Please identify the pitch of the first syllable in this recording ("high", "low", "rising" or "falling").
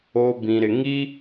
low